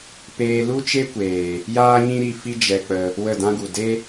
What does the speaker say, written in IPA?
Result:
peː˧lu˦t͡ʃe˦kʷeː˨ | jaː˦ɲĩ˦ɾi˧ fi˦d͡ʒɛ˧k͡pə˧ | wə˦˨dã˦ɡu˨ de˦

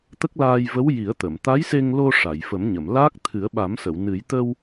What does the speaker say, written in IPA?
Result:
t̪ə˦˥k̚laː˧j və˧˥w ji˨˩˦ə̯t̪ə˨˩˨m t̪a˧˥jse˧ŋlo˧ ʂa˨˩˨jfə˨˩˦mɲə˨˩˨mlaː˦˥k̚ t̪ʰɨ˨˩˦ə̯ɓa˨˩˦msə˨˩˨w nɨ˨˩˦j t̪ə˧w

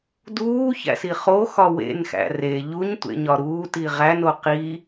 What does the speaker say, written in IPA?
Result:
duːçæ̰si χoxɒ wḛnxæ̰ re ʎuɲtʷḛɲɒ ɾuːti ʁæno qi

